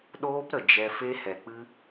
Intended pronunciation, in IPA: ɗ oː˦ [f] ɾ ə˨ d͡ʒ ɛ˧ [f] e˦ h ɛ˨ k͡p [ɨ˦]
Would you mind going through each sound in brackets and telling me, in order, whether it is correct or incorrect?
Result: incorrect: p, correct, correct

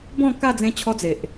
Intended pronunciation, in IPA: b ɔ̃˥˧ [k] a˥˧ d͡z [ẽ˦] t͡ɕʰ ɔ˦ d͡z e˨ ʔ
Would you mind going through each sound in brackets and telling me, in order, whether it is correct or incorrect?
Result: correct, correct

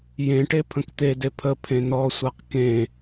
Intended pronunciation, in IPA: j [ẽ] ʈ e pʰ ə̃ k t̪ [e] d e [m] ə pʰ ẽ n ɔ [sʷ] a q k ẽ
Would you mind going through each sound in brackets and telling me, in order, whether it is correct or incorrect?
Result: correct, correct, incorrect: pʰ, correct

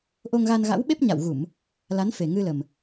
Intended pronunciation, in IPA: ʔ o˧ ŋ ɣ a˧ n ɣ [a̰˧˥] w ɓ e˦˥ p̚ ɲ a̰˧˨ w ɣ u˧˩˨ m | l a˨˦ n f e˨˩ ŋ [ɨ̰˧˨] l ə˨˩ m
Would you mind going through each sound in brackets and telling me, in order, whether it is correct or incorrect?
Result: correct, incorrect: ɨ˧

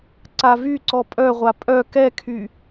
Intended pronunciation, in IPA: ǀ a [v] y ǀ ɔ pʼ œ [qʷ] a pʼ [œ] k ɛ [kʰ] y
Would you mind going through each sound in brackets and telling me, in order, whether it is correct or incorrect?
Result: correct, incorrect: ʁʷ, correct, correct

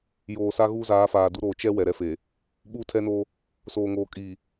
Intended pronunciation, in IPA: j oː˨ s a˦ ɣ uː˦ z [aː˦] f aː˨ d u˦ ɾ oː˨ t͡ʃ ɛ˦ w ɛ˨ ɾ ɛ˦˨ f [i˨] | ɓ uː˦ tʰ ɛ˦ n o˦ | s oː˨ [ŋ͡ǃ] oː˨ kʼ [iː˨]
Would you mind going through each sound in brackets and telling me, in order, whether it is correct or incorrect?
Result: incorrect: aː˨˦, incorrect: e˨, incorrect: ŋ, correct

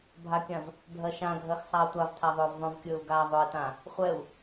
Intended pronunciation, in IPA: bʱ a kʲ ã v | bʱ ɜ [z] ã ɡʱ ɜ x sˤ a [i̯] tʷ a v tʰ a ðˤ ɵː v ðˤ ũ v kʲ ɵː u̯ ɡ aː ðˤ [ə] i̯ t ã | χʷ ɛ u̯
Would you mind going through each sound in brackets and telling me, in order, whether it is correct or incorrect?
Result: incorrect: ʃ, correct, incorrect: ɵ

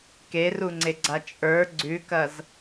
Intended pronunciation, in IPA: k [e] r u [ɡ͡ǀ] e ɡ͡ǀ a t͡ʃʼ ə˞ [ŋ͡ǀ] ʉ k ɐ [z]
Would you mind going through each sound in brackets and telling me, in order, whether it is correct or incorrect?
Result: correct, incorrect: ŋ͡ǀ, incorrect: ɡ͡ǀ, correct

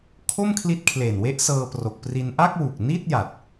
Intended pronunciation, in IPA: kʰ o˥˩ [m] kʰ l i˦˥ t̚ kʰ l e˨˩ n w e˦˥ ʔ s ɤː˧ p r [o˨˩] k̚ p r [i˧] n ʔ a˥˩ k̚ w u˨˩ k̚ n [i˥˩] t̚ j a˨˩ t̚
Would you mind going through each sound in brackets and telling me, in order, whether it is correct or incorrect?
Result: correct, correct, correct, correct

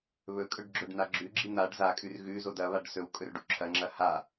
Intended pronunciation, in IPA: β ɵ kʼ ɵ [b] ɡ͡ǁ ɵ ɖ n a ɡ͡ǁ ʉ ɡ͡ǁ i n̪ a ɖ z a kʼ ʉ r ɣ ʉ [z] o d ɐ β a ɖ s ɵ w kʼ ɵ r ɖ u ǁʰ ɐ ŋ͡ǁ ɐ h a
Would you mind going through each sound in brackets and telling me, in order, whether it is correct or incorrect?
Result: incorrect: ɖ, correct

